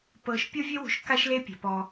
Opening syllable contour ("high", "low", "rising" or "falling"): low